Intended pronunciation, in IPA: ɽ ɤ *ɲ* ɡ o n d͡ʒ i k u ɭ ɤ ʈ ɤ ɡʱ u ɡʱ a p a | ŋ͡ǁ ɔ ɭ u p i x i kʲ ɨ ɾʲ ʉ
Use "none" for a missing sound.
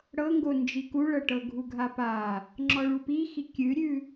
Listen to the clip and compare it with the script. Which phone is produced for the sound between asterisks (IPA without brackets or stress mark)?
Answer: ŋ